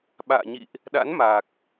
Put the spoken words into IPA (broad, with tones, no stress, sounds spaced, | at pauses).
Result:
ɓ a̰ː˧˨ ɲ ḭ˧˨ ʔ | ɗ a̰˧˥ n m a˨˩ k̚